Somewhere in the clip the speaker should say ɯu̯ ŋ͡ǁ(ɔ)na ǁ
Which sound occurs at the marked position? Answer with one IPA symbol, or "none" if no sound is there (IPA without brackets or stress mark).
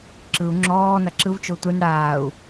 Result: ɔː